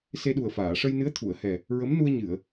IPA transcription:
s e˧ ɗ u˨˩ ə̯ f aː˨˩˨ ʂ ə˧ j n ɨ˧˥ ə̯ t̪ʰ u˨˩˨ ə̯ h ɛ˨˩ | ɹ ə˧˥ m n u˧ ə̯ ɲ ɨ˨˩˨ ə̯

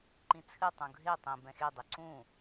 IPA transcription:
ǃ ĩ t͡sʰ ɨ tˤ ũ ɡʱ e tˤ ĩ b ɛ̃ x e dˤ ɨ ǀ ũ

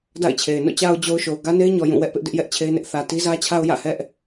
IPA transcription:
d a̰˦˨ ɪ̯ t͡ɕʰ e˨ ɪ̯ n o̰˦˨ t͡ɕ a˨ ʊ̯ d͡ʑ o˨ ʊ̯ ʃ o˨ ʊ̯ ɡ ä˦ n e˦ ɪ̯ ɲ ɔ˨ j ũ˦˨ w ɛ˦ ʔ p ɪ˦ ʔ d ɪ˦ ʔ j ɛ˦ ʔ t͡ɕʰ e˦ ɪ̯ n ɪ˦ ʔ θ ä˨ t i˦ z ä˦ t͡ɕʰ a˦ ʊ̯ j ä̰˦˨ h ɛ˦ ʔ

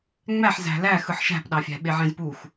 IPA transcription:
ŋ͡m æ ħ z æ̤ l æ x ɯ ħ ʃ æ̤ p ɗ ɑ fʲ æ̤ ɓ e ʕ ẽ z p u x

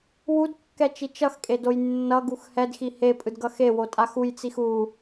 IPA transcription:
w u d kː ɛ t͡ʃ i t͡ʃ ʌ x kʼ e d o j nː ʌ ɡ u x h ɛ d x i h e pʼ ɯ d ɡ ʌ x e w o tʼ a x u j t͡s i x u

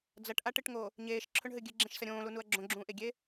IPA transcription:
d͡z ɐ ʈ ʔ a ʈ ɨ ʈ ŋ o | ɲ eː ʃ ǁʰ ɵ ɳ ɦ ɨ ɡʲ ɨ ɡ͡ǁ ẽ ʃ s ɐ ɾʲ õː l u n u ɐ̯ ɡ͡ǁ õ ɡ͡ǁ ũː ʔ e ɡʲ e

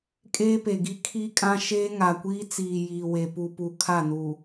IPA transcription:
kʼ eː˦ p e˨ ɡ i˦ kʰ i˦ kʼ ã˦ ʃ eː˦ ŋ a˨ kʷ iː˦ t͡s iː˨ j iː˨ w e˨ p u˨ p u˨ kʰ a˦˨ n u˨

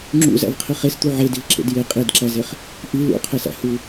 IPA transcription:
ŋ͡ǁ ṵ z æ̰ v qʰ i χ e s t̪ u ʕ e d i v ǁ ḛ d j e qʼ i d ǁ æ z e χ | ʔ i l ṵ qʰ e s æ̰ h u

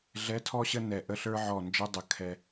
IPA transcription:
ɮ ɛ˧˥˧ tʰ ɔ˥˧ ɕ ə˥˧ n ɛ˨˩ ʔ ə˥˧ ɬ ə˞˦˥ ʕ ɔ˨˩ n d͡ʒ ə˧˥˧ dˤ ə˨˩ kʰ ɛ˨˩

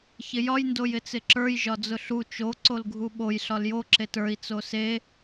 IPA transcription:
ç ɪ j ɒ j n d o j ɪ t͡s ɪ ǁ ə˞ j ʒ ɒ d͡z ʊ ɬ u t͡ʃ o ǀ o l ɡʱ u ɓ o j ɬ ɒ l j o ǁ e t ə˞ i̯ t͡s o s e

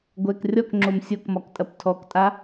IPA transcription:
ɡʷ ɛ k rʲ ɔ k ŋ͡ǁ o m sʲ o k m ɒ k tʼ ɐ p tʰ ɔ k tʼ a

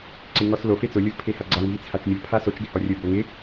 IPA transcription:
ǀ ɪ ŋ ɔ s l o f e t͡s ʊ lʲ o v pʰ e h a ɡ͡ǀ a ŋ v i t͡sʰ a t͡ʃ mʲ o pʰ a s o t͡ʃ ɡ ɪ h ɔ rʲ ʊ b o ŋ ɪ

